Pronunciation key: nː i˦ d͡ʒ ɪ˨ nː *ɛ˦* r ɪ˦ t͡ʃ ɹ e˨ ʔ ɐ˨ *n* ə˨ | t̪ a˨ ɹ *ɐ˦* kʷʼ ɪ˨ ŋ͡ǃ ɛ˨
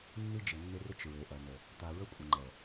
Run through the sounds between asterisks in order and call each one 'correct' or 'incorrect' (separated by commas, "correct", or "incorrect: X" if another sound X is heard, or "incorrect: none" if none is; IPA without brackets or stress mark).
incorrect: ɪ˦, correct, incorrect: ə˦